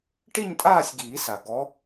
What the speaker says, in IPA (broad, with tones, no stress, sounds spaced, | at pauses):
ʈ i˥˧ ɲ tʼ aː˥˧ sʲ ɡ iː˨˩˦ s a˩ ɡ ɔ˨˦